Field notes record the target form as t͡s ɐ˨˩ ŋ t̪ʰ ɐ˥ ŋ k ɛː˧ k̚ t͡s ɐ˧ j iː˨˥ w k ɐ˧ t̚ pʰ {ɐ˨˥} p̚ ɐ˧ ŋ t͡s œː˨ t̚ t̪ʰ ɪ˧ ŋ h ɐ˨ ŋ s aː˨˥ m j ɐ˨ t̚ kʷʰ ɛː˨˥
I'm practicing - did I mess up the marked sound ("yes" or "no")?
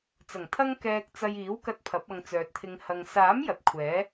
no